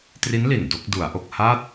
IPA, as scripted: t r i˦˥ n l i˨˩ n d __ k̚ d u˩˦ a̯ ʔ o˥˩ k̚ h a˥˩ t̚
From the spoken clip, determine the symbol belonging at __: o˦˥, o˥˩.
o˥˩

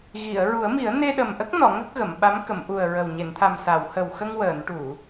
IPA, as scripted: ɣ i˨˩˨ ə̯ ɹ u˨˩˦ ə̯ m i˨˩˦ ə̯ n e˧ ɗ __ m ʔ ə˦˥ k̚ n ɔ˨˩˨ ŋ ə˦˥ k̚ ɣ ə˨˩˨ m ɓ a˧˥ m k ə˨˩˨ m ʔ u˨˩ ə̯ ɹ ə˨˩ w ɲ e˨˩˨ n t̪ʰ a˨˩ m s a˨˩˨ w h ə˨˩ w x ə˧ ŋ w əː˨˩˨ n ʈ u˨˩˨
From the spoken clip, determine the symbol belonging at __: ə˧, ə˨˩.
ə˨˩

